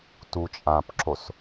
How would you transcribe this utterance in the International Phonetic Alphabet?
t u t͡ʃʼ ã p ǁ o s

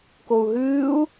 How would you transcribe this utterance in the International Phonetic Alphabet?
k o u̯ ɦ ɨː u̯

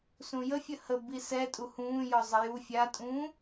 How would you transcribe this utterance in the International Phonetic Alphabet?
s ũ j ə fʲ ə h ə b i s ɛ tʼ u h ũː j ɔ zˤ ə j u fʲ a tʼ ũː

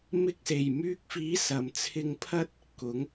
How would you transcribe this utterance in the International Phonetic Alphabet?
m ɪ˧ k̚ s e˨˩ j m yː˧ k̚ f iː˨˥ s ɐ˨ m t͡sʰ ɪ˧ ŋ pʰ ɐ˥ t̚ | k ʊ˨˥ ŋ

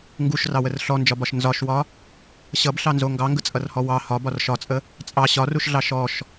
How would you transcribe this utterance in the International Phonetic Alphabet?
ŋ ɡ u ʃ r ɑ w ə r ɬ ɔ n d͡ʒ ɒ b ɒ ʃ n z ɒ ʃ w ɒ | ɕ ʌ b ɬ ɑ n z o ŋ ɡ ɑ ŋ ɡ ə t͡sʼ ʌ r h ɔ w ɑ h ɒ b ɒ r ʃ ɒ t͡sʼ ə | t͡sʼ ɑ ɕ ɒ r u ʃ ɮ ɑ ʃ ɔ ʃ

